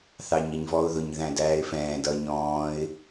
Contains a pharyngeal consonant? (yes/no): no